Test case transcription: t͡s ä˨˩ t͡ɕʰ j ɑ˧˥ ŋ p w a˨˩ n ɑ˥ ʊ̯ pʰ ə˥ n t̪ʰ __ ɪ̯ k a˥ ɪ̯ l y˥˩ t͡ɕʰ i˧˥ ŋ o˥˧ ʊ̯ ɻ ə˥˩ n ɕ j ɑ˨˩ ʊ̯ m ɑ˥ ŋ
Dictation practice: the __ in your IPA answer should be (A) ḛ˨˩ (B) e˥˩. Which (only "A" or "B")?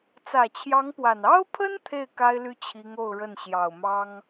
B